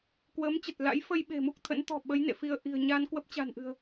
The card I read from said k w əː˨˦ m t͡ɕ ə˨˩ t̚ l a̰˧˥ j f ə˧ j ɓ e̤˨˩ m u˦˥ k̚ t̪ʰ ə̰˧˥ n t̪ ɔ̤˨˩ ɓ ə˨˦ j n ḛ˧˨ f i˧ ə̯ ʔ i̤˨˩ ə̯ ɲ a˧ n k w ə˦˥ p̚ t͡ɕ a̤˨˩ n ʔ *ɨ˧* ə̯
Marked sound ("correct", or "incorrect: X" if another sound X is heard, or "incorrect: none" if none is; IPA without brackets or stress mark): incorrect: ɨ̤˨˩